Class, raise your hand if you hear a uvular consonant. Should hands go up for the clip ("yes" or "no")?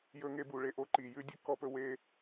no